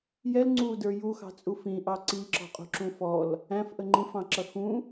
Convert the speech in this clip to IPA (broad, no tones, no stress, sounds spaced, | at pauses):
j ɛ l ŋ͡ǀ u d ə˞ j u x ɑ̤ t͡sʼ u f ĩ ʔ ɑ ǀ i ǁ ɔ̤ qʼ ṳ ǁ ũ f ɔ l | æ̃ f ʔ ə ŋ͡ǃ ĩ f ɑ̃ ǁ ʌ x ũ